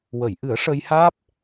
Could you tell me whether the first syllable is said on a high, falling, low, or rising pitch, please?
low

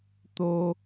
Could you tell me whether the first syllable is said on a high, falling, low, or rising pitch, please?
high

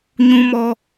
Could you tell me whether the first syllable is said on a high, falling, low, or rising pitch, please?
high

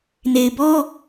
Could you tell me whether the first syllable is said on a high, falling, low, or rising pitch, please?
low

